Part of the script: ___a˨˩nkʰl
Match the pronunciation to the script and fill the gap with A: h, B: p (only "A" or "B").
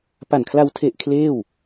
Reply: B